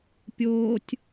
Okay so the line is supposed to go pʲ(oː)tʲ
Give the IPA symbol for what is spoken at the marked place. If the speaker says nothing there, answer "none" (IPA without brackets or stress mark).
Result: oː